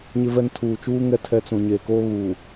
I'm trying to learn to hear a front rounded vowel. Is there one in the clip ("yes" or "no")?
no